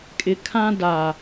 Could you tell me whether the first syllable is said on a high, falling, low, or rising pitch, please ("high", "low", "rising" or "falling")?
low